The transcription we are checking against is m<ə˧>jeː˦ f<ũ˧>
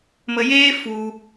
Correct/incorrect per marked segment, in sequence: correct, incorrect

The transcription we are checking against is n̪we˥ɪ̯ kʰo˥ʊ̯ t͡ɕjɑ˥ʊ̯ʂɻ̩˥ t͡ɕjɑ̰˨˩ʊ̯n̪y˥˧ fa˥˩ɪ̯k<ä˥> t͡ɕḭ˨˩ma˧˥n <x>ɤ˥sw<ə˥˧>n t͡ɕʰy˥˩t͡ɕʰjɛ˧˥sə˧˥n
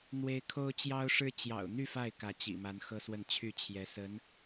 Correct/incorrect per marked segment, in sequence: incorrect, correct, correct

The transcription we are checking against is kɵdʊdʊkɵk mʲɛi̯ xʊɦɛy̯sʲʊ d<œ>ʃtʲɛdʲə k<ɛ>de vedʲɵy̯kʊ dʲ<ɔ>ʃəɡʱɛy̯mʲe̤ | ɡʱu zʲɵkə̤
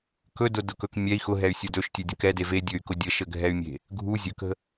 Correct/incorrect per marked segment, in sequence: incorrect, correct, incorrect

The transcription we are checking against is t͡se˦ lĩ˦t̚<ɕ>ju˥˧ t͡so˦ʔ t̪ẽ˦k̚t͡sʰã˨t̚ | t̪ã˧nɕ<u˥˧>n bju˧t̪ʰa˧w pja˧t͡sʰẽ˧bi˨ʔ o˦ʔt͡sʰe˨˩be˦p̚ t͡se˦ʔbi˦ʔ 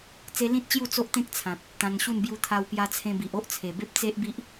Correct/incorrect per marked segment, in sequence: incorrect, correct

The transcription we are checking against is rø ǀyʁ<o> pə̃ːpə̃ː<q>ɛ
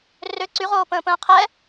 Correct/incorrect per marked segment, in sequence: incorrect, incorrect

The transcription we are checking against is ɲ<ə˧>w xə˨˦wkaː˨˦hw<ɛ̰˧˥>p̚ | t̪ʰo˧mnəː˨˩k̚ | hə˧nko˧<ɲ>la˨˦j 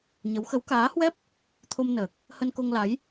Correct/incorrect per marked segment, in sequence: incorrect, incorrect, incorrect

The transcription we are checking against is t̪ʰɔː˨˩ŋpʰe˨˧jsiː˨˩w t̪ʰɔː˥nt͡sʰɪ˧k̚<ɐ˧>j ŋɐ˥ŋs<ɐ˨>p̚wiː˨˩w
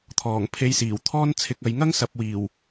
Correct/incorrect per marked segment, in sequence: incorrect, correct

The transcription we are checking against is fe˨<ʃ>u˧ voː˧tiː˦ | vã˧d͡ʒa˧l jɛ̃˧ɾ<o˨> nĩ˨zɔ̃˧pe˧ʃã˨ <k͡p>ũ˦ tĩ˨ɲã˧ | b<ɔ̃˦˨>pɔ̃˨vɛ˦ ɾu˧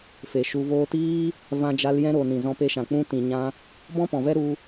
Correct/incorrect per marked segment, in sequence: correct, correct, correct, incorrect

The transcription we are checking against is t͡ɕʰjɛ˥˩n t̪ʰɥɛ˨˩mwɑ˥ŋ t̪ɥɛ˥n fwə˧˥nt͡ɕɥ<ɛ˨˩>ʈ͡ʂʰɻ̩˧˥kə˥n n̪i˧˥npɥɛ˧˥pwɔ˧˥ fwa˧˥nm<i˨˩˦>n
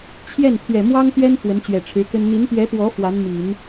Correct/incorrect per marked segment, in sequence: correct, correct

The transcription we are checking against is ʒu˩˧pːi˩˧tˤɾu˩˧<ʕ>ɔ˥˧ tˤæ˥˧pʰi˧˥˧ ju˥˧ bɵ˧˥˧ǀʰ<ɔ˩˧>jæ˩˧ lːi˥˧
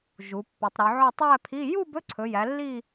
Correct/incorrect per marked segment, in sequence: correct, incorrect

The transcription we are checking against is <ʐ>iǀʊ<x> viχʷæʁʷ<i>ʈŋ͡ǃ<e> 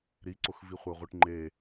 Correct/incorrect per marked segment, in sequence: incorrect, correct, correct, correct

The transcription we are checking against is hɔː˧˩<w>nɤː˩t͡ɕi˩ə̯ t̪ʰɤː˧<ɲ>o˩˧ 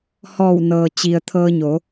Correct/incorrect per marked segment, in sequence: correct, correct

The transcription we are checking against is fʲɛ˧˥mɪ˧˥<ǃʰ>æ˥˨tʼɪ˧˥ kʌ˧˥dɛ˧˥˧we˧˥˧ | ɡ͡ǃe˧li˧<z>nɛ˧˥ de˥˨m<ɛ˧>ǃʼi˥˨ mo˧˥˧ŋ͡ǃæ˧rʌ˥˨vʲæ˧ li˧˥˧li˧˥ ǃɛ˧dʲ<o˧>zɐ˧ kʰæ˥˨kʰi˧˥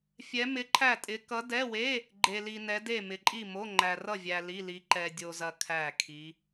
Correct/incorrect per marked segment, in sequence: correct, incorrect, incorrect, correct

